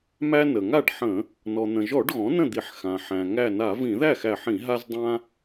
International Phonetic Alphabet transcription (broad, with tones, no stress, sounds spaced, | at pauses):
m æ˦ n ə˩ ŋ a˥˩ ɖ ħ ə̃˧˩˧ | n ɔ˩ n̪ ə̃˩ ʒ ɔ˧˩˧ ɖ ɣ ɔ̃˩˥ n ə̃˥˩ d̪ i˧˩˧ ħ x ã˩ ħ æ̃˩ ŋ æ˧˩ n a˧˩˧ v ĩ˧˩˧ ð æ˥˩ x æ˧˩ ħ ĩ˧˩˧ ɦ a˦ z dˤ ã˦